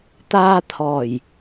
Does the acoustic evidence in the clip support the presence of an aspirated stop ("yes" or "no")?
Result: yes